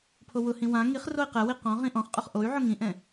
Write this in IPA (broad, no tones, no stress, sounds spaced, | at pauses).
pʰ o w ʊ h ĩ w ã ŋ i χ r o i̯ q ɛ w i q ɔ̃ ʁ ĩ ʔ ɔ̃ χ qʼ ʊ χ ʔ o y̯ ʕ ʊ ŋ ĩ ʔ ɛ̃